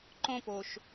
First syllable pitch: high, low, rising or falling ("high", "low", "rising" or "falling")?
falling